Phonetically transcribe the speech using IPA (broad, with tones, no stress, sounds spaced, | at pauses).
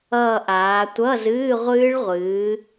ʌː˦˨ ʔ aː˨˦ tʷ ʌ˧˥˧ z ɨː˧˥˧ ʁʷ ɨː˦˥ ɭ ʁʷ ɨː˨˦